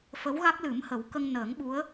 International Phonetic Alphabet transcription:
f ə˧˥ w ɣ a˦˥ k̚ l ɨ˨˩˦ m h ə˨˩˦ w k ə˧ ŋ n əː˨˩˦ ŋ ɓ u˧˥ ə̯

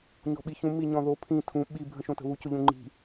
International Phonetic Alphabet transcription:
ɲ ɔ̤ ɓ i ç ũ m i ɲ ɔ̃ ð o pʰ ĩ tʰ ũ ɓ i bʱ ə̃ ʃ õ t ə̤ β u c ʊ ʎ ũ ŋ͡ǃ i̤

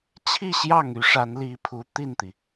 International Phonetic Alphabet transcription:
t͡ɕʰ i˥˧ ɕ j ɑ˥˩ ŋ y˧˥ ʂ a˧˥ n l i˧˥ pʰ u˧˥ t̪ i˥˩ n t̪ i˩

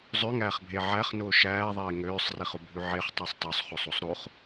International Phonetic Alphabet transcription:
zˤ ø ŋ æː χ bʱ e ʕ æ χ n ʊː ʃ æː ðˤ eː ŋ øː sˤ r i χ ʊ bʱ ʉ ʕ e χ tˤ o sˤ tˤ o sˤ χ o sˤ o sˤ ɾ o χ

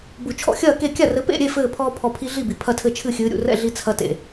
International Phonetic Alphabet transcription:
b u˧˩ t͡ʃʰ ɔ̰˥˩ xʲ ɐː˥˩ k e˥˩ kʲ a˥˩ r ɘ˨˥ p ḛ˥˩ ɾʲ e˥˩ f ɘː˧˩ pʰ ɔː˧ pʰ ɔ˧˩ pʰ i˧ ɮ i˥˩ b i˩ pʰ ɐ˥˩ tʰ ɘ˥˩ t͡ʃʰ ɨ˥˩ xʲ ɨː˨˥ ɾʲ ṵ˧˩ r ɛ̰˥˩ ɮ i˧ t͡sʰ ɐ˧ t ḛ˩

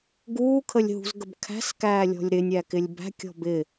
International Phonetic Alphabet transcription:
ɡ uː kʰ ə lʲ ɦ ṳ z ɡ ə b kʰ æ̤ s k æː lʲ ɔ̤ lʲ ɾ ɪ nʲ æ k ɪ lʲ b æ̤ kʲ ɔ̤ b ɪ

